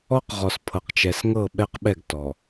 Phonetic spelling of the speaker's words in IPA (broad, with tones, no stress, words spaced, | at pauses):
ɔ˦qʁɔ˨s pʰɤ˨qt͡ʃɛ˨s ŋɤ˦˨ɓɛ˦qɓɛ˦˨ɡ tɔ˨